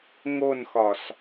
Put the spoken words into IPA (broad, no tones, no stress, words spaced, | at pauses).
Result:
ŋonxɒs